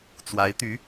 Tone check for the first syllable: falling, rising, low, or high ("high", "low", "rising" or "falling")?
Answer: rising